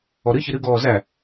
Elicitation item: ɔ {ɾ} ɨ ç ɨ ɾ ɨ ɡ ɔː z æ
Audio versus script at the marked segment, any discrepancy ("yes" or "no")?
no